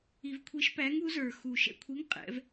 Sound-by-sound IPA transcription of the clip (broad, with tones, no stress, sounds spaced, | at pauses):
i˧ v kʷʰ i˧˥ ʃ p æ˧˥ ŋ u˧˥ z ə˞˧ x u˧ ʃ ɛ̰˧ kʷʰ i˧˥ ŋ qʼ ɛ̰˧˥ v